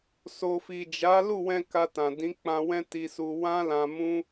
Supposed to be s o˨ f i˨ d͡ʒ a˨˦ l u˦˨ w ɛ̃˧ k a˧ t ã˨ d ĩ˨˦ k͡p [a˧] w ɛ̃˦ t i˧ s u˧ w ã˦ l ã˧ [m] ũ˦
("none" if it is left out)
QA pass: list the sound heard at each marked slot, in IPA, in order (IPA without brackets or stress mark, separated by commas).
ã˧, m